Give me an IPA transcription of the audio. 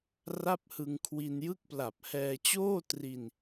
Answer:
r a˥˩ p̚ h ɯ˧ ŋ kʰ w i˧ n j ɯ˥˩ k̚ p l a˨˩ p̚ h ɛː˧ t͡ɕ oː˥˩ t r i˧ n

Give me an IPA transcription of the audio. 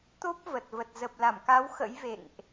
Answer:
t̪ o˦˥ p̚ v ə˨˩ t̚ v ə˨˩ t̚ z ə˨˩ p̚ l a˧˩ m k a˨˦ w x ə̰˧˥ j v ḛ˧˨ ŋ ʔ

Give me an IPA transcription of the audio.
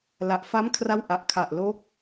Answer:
l a˨˩ ʔ f a˦˥ m kʰ r a˦˥ w ʔ a˨˩ ʔ kʰ a˨˩ ʔ l o˦˥ k̚

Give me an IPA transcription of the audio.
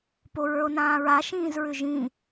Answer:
p o ɹ ə˞ o̯ n ãː ɹ a ʃ ĩː z ɹ ʏ ʒ ĩ

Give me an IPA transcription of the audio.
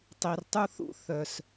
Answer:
tˤ i˨ r tˤ u˦ θ ṵ˦ θ œ˧ s

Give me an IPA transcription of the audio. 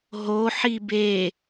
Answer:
ɦ o ħ i b e

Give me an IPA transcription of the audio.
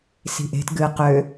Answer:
s i̤ ʔ e̤ t ɡ ɨ q ø

